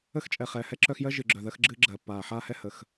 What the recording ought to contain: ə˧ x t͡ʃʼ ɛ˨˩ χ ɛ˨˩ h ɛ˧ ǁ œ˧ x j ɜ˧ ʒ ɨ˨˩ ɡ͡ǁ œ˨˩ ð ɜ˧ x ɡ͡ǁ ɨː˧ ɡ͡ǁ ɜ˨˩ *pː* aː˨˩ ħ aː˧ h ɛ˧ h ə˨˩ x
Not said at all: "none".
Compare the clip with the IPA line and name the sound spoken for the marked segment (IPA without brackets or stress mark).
pː